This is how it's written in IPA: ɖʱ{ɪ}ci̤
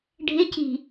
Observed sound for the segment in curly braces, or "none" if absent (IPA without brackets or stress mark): ɪ